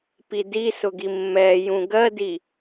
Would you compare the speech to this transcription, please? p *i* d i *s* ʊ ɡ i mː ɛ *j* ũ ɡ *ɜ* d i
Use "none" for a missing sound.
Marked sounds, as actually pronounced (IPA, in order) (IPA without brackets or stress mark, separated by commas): i, s, j, ɜ